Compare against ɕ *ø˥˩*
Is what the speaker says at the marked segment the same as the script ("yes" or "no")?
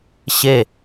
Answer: no